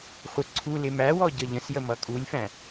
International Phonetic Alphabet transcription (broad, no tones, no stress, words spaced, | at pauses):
χʷə ǀʰu lɪmæwɔ ɟʌʎə̃sjə mʌkʼulʲfæ̃